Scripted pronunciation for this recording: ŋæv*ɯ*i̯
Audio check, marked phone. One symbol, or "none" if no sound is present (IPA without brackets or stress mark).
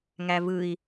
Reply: ɯ